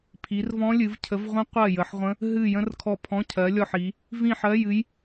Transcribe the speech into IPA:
pʰ i˨˦ r v ɔ̃˦˥ lʲ ɨ˨˦ v cʰ ə˨˦ v ʁʷ ə̃˦˥ qʷ ɜ˦˨ j ə˨˦ ħ ʁʷ ə̃˦˥ | ɦ ɨ˦˨ j ə̃˦˥ r kʰ ɔ˦˨ pʰ ɔ̃˧˥˧ cʰ ɜ˨˦ lʲ ɔ˦˨ ħ i˨˦ | v ĩ˦˨ ħ ɜ˧˥˧ j ɨ˦˥ j

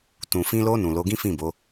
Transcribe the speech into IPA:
t ũ˨ f ĩ˧ l o˧ n ũ˨ l o˨˦ ɡ ĩ˦ f ĩ˦˨ b o˨˦

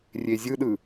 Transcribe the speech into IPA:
rʲ e zʲ ɯ ɗ ɯ

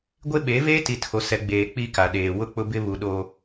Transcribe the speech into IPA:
ɡʷ e˦ ɓ eː˨˦ v eː˦ t i˨ tʰ o˨ s ɛ˨ ɡ͡b eː˨ k͡p i˦ k a˨ ɗ eː˨ w ʊ˦˨ k͡p ʊ˦ b ɪ˦ β u˨ ɗ oː˨

